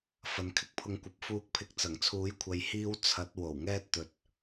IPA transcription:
f ɐ˨˧ n kʰ ɪ˥ k̚ pʰ ʊ˧ ŋ kʷ ɐ˨˥ p̚ f uː˧ k̚ pʰ ɪ˧ k̚ t͡s ɐ˨˩ ŋ t͡sʰ uː˨˥ j kʷʰ ɐ˨˧ j h iː˥ w t͡sʰ ɐ˨˥ t̚ w o˨˩ w ŋ ɛː˥ t̚ t̪ ɵ˨ t̚

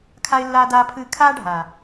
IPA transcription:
kʰ a˧ ɪ̯ lː aː˧ d aː˧ pʰ ɨː˧ kʰ aː˦ ɖʱ aː˨

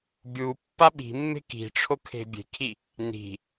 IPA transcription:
bʲ u pː a ɓ i̤ mː e̤ k i̤ ʈ͡ʂʰ o kʰ e̤ bʲ e̤ kʰ i | n i̤

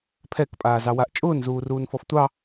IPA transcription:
pʰ ɛ k pʼ aː z ɑ w a ʔ t͡ʃʼ ʊː n z uː r uː n f ɔ f tʷ ɑ

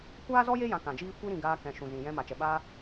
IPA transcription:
kʷ aː˦ z ɔ˦ j e˦ j ã˧ k ã˨ d͡ʒ iː˦ kʷ i˦ ɾ ĩ˧ ɡ aː˧ k ɛ̃˨ ʃ ũ˨ z ĩ˨ j ɛ̃˧ m a˨ t͡ʃ ɛ˨ ɓ aː˧

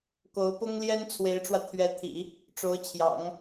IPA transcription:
k o˧˥ ʊ̯ p ʊ˥ ŋ l j ɛ˥ n t͡sʰ w e˧˥ ɪ̯ ʈ͡ʂ w ä˧ t̪ʰ ɥ ɛ˧˥ t̪ʰ ḭ˨˩˦ | ʈ͡ʂ o˧˥ ʊ̯ t͡ɕʰ j ɑ̰˨˩˦ ŋ

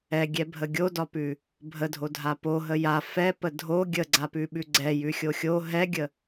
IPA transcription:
ɛ ɡʲ ɛ bʱ ə ɡʲ o d ɒ p ʉ | bʱ ə dʱ o dʱ a p o ɦ ə j a f ɛ p ə dʱ o ɡʲ ə ɡ͡ǀ a p ʉ ɓ ʉ ɡ͡ǀ ɛ j ʉ xʲ o xʲ o ɦ ɛ ɡʲ ə

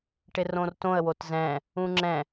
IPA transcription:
ʈ ɪ r õ r t õ ə̯ w o t z ɛ̃ | ũ ŋ͡ǁ ɛ̃

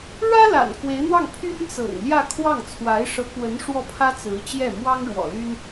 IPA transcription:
ɻ ä˥ l a̰˨˩ n k w e˧˥ ɪ̯ n̪ w ɑ˥˩ ŋ pʰ y˥ n t͡s ɤ̰˨˩ ŋ l j ä˥˧ kʰ w ɑ˥˩ ŋ t͡sʰ w a˧˥ ɪ̯ ʂ ɤ˧˥ k w ə˧˥ n ʂ w ɔ˥˩ pʰ ä˥ t͡s ɹ̩˧˥ t͡ɕ j ɛ˥˩ m w ɑ˥ ŋ ɻ w ɔ̰˨˩ l y˥ n

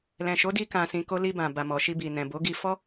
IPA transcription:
l ɛ̃˨ ʃ o˨˦ d i˧ k ã˨ s ĩ˨ k o˧ l i˧ b ã˨ b a˨ m ɔ˨ ʃ i˧ b i˨ n ɛ̃˨ b o˨˦ ɡ i˧ f ɔ˦

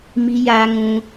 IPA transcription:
m i˦ j aː˦ ŋ ũ˦

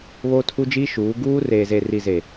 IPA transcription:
β oː˦ tʰ u˦ d͡ʒ iː˦ ʃ uː˨˦ ɡ uː˦ r eː˨ z e˨ r i˨ z e˨

